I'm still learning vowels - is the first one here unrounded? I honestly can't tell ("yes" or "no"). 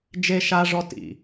yes